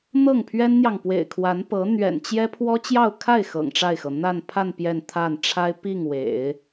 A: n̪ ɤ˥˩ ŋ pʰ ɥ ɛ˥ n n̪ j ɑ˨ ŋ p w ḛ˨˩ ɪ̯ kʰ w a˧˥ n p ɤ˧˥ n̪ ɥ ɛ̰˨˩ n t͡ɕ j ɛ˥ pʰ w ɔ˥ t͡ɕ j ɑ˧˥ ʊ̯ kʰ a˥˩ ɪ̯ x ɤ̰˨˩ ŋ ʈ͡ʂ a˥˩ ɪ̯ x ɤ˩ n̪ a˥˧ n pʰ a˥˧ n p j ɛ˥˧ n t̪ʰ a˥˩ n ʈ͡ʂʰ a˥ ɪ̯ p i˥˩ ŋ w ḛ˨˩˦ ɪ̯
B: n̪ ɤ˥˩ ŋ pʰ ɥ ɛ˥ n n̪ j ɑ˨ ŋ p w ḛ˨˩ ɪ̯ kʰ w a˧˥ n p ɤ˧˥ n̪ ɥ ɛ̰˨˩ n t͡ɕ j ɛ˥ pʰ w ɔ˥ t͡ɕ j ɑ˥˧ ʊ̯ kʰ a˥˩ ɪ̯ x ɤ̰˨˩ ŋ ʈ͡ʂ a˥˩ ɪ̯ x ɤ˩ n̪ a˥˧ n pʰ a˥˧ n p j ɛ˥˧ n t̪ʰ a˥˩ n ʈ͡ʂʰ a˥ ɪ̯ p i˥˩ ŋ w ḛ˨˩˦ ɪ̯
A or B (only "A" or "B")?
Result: B